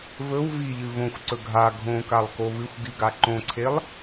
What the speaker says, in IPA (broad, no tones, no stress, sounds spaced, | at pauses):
v ɵ w v i ʎ ɨ v õ xʷ ǀ ɵ ɡʱ a ɡʱ õ k a lˠ k o v ɨ xʷ ɡ i ɡ a ǃ õ ǀʰ e lˠ